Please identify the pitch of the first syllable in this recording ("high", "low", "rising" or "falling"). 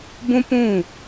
high